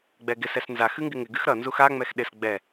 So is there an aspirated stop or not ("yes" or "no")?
no